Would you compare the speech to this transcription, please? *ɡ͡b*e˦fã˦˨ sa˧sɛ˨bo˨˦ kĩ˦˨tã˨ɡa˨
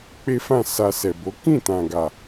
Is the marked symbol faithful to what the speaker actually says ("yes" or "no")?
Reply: no